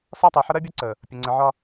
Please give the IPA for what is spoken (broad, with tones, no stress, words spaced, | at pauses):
sɒ˦tˤɜ˨ħə˦ ɾɜ˦bʲʌ˦ǀə˨ | pʲʊ˨ ŋ͡ǀə˨ʕɒ˦